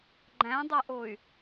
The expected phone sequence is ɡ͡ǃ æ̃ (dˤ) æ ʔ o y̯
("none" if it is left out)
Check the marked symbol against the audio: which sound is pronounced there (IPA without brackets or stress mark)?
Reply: dˤ